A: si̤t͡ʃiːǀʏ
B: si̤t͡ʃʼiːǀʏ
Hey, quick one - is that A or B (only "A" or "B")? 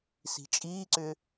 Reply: B